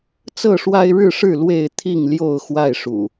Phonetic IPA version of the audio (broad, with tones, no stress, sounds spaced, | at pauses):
t͡s ɤ˥˨ ʂ w a˦ ɪ̯ ɻ ɻ̩˥˨ ʂ ɻ̩˥˨ l w e˥˨ ɪ̯ t̪ʰ i˥˨ ŋ l j o˥˨ ʊ̯ x w a˥˨ ɪ̯ ʂ ṵ˨˩